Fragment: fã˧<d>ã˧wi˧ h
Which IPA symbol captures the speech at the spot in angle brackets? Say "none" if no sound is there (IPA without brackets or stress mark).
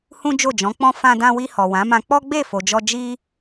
d